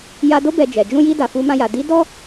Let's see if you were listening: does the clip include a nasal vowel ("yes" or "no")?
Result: yes